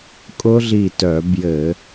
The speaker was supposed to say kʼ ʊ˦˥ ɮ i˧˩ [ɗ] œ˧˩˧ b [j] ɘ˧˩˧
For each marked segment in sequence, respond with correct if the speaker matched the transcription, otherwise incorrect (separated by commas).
incorrect, correct